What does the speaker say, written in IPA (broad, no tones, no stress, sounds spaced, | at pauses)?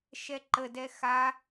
ʃ ɛ ǃ ə d ɛ x a